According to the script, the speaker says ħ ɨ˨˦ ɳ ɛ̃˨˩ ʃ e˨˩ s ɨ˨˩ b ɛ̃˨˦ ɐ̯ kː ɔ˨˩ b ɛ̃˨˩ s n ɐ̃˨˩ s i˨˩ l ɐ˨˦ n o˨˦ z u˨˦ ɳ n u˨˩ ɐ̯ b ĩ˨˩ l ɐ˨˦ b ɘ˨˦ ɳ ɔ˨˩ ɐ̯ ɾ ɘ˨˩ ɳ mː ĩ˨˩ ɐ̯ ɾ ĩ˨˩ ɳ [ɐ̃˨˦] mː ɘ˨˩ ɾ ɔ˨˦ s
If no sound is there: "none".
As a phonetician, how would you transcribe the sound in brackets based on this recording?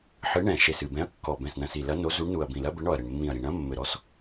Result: ɐ̃˨˦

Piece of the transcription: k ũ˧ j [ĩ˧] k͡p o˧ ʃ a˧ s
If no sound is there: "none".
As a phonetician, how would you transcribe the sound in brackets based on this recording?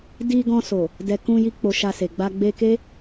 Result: i˧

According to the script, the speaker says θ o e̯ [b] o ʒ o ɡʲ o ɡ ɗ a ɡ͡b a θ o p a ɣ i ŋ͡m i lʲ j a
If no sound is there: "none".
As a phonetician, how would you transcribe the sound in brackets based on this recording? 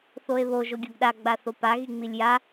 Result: β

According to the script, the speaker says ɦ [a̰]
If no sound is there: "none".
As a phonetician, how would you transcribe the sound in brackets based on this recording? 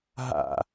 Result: a̰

